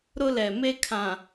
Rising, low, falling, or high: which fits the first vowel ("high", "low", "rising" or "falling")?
high